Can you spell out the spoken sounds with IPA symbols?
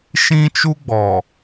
ʃĩ˦t͡ʃu˦ɡ͡bɔ˨

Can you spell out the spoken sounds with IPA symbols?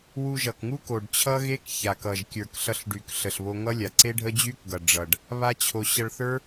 wu˧ʒʌ˨kŋu˦ ko˨ɖt͡ɕʰʌ˦ɣe˦k ça˨kʌ˨ʒ kʲə˞˨kɬʌ˧ɬɖy˨k ɬə˨ɬβo˧ŋʌ˦lʲa˨ ǀe˦ɖʱə˦d͡ʑy˦kɡʌ˨ ɖ͡ʐʌ˨ɖ | βa˦t͡ɕʰo˧ ɕʌ˧ɭθə˞˦

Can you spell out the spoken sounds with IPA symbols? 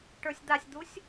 ʈə˞sʲd̪asʲd̪usʲ

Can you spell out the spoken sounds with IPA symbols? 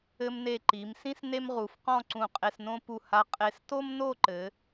ɘ˧mne˧˩ ǃi˩˧msĩ˥s ne˥mʁu˩˧fqɔ̃˥˧ ǀũ˧˩qʼe˧snõ˥ pu˧˩ha˧ qʼe˧s to˥mno˥˧ǃɘ˩˧

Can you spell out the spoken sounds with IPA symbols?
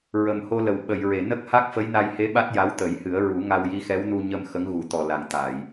ɹə˨˩mho˧lə˨˩w ɓə˨˩˨jɹe˨˩˨ nə˦˥k̚ha˦˥k̚ fə˧˥jna˧jhe˧˥ɓa˦˥t̚ ja˧˥wt̪ə˨˩˦jhɨ˨˩˦ə̯ ɹu˨˩˦ŋa˧w ji˧˥xɛ˧˥wnu˧ ɲə˧m xə˧˥ŋɣu˨˩˦ t̪ɔ˨˩la˨˩˨ŋ t̪a˨˩˨j

